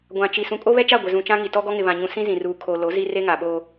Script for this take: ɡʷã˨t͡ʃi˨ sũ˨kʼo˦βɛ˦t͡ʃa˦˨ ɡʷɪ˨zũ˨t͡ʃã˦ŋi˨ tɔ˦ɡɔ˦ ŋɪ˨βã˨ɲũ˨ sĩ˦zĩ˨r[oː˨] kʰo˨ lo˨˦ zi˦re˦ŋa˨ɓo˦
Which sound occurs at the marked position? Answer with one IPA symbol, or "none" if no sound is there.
uː˨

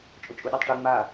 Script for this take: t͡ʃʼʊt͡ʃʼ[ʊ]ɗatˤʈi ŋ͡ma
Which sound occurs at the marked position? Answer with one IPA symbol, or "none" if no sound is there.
u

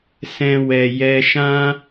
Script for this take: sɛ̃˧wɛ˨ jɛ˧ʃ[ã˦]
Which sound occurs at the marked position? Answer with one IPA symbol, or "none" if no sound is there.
ã˦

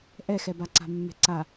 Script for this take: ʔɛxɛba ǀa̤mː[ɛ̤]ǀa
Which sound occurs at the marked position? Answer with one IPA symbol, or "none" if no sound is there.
ɛ̤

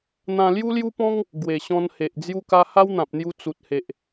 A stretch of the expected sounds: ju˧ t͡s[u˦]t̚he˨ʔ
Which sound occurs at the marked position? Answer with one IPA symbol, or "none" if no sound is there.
u˨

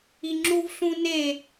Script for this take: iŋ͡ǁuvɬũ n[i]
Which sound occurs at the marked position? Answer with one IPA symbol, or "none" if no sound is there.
e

